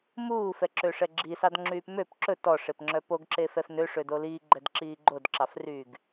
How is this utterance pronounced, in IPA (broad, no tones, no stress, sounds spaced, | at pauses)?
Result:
m uː f ɛ ǁ ø ʂ ɛ ɡ͡ǁ i s ɑ d ŋ͡ǁ yː p m ø p ǁ ɵ t ɔ ʂ e p ŋ͡ǁ œ p o ɡ ǁ e f ɛ f n ø ʂ ø d o l iː ɡ͡ǃ ɛ d ǁ iː ɡ͡ǃ o d ǁ ɑ f r yː ɡ